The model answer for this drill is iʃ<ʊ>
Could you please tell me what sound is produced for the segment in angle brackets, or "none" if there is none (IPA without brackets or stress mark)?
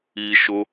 ʊ